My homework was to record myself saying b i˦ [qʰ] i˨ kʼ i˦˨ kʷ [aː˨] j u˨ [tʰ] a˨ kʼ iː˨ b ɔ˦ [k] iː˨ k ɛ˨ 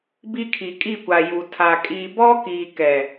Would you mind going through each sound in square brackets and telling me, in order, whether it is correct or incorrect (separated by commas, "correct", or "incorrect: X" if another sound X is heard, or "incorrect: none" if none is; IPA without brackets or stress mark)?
incorrect: kʰ, incorrect: a˨, correct, correct